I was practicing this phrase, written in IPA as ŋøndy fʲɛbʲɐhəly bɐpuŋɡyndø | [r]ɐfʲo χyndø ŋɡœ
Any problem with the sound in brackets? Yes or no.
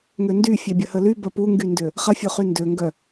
yes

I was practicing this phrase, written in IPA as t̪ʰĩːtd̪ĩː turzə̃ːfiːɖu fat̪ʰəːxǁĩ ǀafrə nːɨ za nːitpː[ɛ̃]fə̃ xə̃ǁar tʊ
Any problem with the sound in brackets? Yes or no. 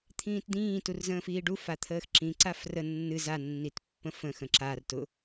yes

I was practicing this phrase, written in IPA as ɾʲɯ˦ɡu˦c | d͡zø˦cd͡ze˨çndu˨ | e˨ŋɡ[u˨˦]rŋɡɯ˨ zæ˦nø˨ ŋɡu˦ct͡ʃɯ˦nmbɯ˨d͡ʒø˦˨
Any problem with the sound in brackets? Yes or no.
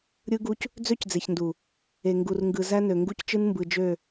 yes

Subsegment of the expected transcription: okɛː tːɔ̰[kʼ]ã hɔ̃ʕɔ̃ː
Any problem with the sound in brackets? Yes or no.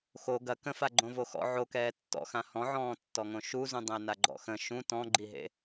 yes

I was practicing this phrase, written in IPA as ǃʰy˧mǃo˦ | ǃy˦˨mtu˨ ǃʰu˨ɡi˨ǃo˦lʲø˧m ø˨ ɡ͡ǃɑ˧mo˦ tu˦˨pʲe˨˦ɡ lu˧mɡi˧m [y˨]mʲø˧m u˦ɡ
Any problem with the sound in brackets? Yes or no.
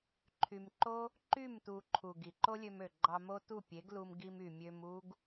no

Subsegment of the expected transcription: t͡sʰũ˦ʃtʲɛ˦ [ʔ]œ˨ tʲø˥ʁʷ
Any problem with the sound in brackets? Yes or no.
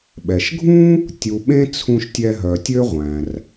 yes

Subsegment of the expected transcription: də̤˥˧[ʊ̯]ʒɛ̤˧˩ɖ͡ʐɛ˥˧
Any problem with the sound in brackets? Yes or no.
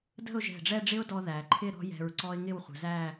no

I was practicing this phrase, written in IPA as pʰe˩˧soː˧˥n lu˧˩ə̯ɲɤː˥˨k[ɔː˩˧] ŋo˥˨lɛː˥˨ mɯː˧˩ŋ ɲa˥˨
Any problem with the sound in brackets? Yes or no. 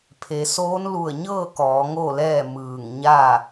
no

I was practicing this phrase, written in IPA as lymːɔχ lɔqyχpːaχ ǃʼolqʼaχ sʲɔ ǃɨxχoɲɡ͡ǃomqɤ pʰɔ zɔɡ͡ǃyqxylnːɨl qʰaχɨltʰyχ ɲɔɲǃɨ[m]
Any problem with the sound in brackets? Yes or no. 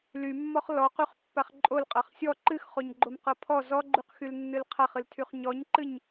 yes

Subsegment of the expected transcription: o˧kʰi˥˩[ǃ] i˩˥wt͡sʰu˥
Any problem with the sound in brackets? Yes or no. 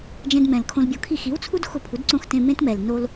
yes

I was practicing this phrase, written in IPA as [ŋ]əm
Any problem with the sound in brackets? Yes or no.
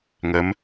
no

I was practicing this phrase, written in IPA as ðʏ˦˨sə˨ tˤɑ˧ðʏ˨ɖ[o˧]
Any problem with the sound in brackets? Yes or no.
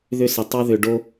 no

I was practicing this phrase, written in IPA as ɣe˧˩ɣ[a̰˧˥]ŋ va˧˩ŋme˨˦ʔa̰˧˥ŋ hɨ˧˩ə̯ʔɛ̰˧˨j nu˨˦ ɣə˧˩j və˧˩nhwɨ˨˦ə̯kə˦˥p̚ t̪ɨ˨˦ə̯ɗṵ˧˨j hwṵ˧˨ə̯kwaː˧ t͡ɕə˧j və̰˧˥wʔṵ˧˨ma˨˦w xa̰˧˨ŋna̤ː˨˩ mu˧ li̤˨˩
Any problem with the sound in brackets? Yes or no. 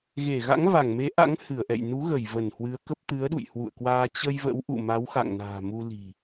no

